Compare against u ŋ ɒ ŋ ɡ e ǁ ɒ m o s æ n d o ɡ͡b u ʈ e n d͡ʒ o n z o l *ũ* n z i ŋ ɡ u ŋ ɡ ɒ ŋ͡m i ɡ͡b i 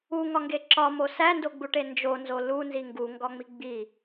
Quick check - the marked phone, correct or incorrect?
incorrect